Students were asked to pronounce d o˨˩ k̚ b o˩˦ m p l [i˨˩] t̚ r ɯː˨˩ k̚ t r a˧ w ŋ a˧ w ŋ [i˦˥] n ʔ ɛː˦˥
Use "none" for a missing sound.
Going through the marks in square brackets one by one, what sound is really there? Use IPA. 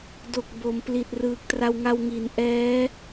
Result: i˨˩, i˩˦

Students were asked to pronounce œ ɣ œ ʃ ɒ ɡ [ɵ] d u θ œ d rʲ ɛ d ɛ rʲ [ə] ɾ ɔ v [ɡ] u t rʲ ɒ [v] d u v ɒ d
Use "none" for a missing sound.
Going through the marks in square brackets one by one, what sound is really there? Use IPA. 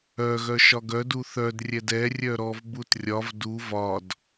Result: œ, œ, b, v

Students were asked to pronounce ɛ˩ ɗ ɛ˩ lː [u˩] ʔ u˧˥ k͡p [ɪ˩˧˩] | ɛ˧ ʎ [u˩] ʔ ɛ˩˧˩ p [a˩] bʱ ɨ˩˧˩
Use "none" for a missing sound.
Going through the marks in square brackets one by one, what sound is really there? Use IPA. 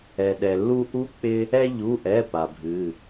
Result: u˧, ɪ˧, u˩˧˩, a˩

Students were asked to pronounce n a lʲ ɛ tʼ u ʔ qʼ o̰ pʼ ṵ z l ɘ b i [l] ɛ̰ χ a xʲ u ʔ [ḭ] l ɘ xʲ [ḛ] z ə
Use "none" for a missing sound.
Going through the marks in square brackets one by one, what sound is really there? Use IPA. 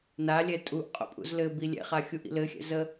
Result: lʲ, ḭ, ɛ̰

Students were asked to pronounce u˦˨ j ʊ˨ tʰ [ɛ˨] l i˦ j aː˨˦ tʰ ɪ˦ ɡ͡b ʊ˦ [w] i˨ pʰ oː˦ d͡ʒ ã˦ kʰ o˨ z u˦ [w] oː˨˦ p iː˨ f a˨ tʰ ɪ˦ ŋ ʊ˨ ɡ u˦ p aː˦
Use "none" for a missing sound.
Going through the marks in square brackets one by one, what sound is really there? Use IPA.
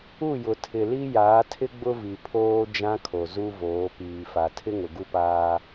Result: ɪ˨, v, v

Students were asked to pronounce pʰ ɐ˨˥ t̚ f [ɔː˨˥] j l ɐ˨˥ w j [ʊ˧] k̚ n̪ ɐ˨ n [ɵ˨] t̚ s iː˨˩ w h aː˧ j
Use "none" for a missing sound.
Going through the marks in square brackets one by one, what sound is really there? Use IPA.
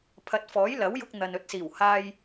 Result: ɔː˨˥, ʊ˧, ɵ˧

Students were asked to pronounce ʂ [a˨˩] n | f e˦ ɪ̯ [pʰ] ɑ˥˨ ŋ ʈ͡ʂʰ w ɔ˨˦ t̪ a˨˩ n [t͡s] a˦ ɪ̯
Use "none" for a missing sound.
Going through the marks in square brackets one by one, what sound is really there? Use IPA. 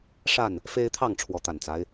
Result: a˥˨, t̪ʰ, t͡s

